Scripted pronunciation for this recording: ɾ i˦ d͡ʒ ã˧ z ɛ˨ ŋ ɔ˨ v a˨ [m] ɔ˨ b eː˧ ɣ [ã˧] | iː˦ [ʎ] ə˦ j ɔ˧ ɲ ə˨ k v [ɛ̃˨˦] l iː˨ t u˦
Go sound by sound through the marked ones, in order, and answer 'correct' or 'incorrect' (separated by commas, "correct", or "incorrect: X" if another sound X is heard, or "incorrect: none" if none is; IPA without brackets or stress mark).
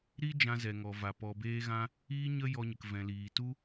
incorrect: p, correct, incorrect: ɲ, incorrect: ɛ̃˨